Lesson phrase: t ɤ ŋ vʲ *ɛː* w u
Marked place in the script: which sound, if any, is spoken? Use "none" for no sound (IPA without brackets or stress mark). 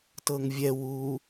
ɛ